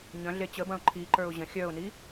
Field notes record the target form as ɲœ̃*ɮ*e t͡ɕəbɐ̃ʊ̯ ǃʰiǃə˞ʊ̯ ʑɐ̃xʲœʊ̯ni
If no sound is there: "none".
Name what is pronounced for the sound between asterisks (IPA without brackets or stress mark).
ɮ